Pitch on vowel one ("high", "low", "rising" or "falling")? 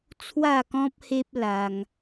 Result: falling